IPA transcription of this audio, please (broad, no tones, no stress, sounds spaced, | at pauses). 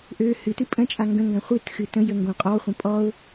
ʔ ø h ɨ t ɨ pʼ ə̃ t͡ʃʼ a ŋ ɡ ə̃ ŋ ɡ ã χʷ ɨ t x ɨ t ə̃ j ə ŋ ɡ õ qʼ ɔ χʷ ə̃ pʼ ɔ ʊ̯